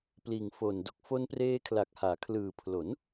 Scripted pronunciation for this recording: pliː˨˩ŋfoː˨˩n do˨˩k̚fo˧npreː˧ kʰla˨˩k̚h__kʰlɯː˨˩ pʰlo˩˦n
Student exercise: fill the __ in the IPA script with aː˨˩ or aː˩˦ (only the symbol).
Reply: aː˩˦